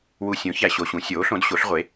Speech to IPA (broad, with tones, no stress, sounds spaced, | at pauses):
w u˨ sʲ õ˩˥ ç æ˨ ɕ o˨ ɕ ũ˩˥ sʲ oː˩˥ ɬ õ˩˥ d ɕ o˩˥ ɬ ʁʷ e˩˥